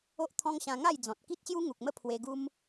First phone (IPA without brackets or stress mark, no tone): o